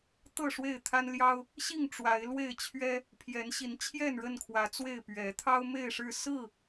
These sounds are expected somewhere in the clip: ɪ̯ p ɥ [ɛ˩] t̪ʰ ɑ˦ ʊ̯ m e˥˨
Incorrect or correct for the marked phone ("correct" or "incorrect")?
incorrect